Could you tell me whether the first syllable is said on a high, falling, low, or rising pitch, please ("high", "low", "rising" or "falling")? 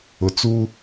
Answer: low